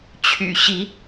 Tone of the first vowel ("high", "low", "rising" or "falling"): low